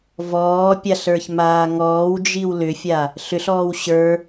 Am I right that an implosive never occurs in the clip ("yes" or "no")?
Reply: yes